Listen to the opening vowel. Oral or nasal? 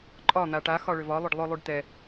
oral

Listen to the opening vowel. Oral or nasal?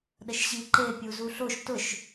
oral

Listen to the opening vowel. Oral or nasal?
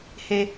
oral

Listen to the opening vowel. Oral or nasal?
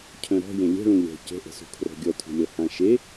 nasal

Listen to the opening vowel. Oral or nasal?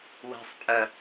oral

